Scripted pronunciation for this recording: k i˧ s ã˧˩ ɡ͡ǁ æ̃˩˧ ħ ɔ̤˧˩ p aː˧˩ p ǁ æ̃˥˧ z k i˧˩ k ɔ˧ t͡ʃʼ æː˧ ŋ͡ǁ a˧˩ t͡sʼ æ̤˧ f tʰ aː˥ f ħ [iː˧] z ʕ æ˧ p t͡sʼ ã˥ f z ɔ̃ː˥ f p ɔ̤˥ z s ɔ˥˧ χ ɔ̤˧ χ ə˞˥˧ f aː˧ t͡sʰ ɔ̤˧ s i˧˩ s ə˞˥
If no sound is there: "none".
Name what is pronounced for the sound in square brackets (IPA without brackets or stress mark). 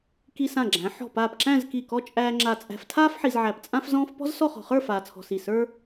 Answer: i˧